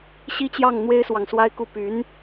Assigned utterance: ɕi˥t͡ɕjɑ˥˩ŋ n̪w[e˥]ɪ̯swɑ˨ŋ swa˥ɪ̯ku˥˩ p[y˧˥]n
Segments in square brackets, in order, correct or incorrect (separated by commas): correct, correct